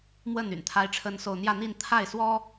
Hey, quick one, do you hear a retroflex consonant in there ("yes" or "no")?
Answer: yes